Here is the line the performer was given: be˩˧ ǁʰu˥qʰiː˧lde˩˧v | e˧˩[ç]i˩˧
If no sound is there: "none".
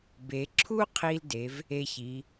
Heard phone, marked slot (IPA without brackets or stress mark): ç